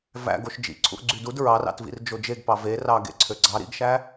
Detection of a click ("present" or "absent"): present